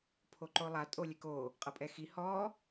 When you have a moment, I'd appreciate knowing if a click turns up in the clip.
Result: yes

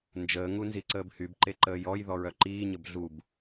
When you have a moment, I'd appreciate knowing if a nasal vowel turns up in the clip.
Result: no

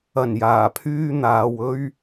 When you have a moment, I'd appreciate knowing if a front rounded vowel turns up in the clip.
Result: yes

